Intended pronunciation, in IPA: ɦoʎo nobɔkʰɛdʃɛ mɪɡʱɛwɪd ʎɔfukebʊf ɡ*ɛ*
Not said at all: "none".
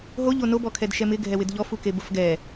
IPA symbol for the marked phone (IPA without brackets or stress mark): ɛ